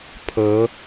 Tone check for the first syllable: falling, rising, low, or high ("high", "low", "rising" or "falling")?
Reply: rising